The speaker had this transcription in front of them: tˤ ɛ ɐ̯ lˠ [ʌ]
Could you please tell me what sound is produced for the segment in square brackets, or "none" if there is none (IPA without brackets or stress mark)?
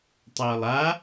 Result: a